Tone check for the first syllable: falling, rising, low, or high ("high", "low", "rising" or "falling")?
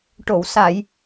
low